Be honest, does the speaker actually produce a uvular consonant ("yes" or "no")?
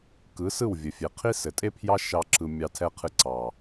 yes